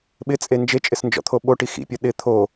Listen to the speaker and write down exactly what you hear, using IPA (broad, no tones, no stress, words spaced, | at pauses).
ɓɪt͡sʼe nd͡ʒet͡ʃʼɪsnd͡ʒɔ̰t̪ʰo ɓoʈi xḭpʲɔ ɗɪ t̪ʰo